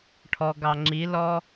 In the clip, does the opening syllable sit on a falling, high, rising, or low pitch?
low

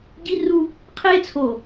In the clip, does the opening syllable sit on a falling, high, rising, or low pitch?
high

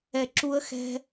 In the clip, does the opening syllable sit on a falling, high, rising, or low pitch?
low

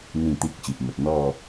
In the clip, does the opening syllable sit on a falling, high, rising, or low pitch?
falling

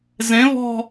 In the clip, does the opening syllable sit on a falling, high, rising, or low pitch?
rising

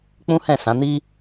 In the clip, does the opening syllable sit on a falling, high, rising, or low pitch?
high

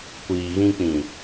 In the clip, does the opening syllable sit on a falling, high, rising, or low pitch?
low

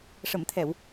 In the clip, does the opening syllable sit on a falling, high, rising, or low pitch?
low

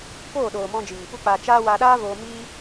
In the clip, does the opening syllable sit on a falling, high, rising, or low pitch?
falling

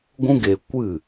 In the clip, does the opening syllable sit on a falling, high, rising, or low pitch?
high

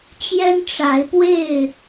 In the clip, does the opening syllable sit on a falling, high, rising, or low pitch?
high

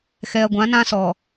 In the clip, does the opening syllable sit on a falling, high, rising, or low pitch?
low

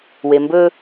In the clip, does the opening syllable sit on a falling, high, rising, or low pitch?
low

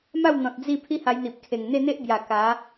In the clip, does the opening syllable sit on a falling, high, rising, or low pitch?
falling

